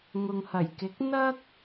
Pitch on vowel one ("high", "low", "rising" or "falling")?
low